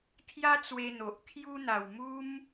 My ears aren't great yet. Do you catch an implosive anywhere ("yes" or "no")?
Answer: no